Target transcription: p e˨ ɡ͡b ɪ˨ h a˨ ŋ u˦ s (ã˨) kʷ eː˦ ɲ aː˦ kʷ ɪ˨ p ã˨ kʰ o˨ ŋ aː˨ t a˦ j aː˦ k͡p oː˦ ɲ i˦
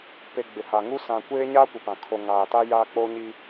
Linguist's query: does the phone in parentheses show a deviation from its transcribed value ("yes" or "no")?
no